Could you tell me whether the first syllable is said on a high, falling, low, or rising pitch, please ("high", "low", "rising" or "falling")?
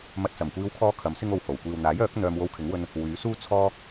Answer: low